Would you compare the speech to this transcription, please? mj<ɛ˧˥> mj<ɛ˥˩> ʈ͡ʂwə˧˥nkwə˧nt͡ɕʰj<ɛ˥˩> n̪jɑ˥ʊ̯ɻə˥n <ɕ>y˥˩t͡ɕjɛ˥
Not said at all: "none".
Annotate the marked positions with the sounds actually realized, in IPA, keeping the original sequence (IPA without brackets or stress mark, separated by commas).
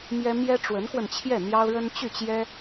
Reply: ɛ˥, ɛ˥, ɛ˥˩, t͡ɕ